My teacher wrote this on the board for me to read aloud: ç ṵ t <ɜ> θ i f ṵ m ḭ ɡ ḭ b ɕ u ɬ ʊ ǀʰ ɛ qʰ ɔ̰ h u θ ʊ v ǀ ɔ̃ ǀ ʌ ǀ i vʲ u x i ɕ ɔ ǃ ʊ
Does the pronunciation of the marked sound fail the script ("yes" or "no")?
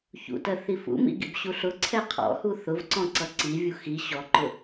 no